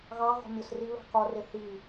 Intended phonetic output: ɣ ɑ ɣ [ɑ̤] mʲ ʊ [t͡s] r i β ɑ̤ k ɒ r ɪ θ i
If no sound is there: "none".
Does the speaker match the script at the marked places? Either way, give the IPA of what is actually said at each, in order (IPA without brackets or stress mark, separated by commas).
ɔ̤, s